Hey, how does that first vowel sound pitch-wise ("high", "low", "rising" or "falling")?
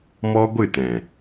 high